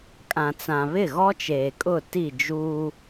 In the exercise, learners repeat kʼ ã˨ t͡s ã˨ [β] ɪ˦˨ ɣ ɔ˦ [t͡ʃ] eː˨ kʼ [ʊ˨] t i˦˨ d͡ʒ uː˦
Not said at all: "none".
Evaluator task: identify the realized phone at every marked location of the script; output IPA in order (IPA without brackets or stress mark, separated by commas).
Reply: β, t͡ʃ, ʊ˦˨